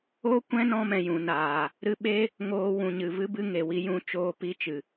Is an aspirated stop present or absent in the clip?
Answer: absent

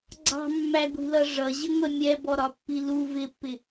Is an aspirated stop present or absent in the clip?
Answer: absent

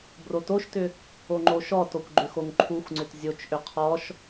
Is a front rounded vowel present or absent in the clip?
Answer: present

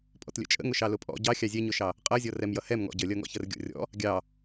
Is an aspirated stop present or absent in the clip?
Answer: absent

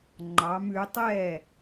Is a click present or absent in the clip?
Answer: present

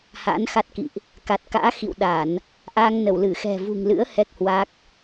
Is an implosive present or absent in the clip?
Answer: present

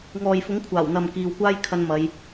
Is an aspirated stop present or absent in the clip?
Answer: present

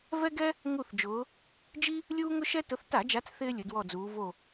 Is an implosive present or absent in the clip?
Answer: absent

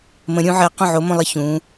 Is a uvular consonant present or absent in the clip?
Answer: present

